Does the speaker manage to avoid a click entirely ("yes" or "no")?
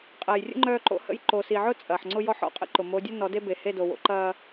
no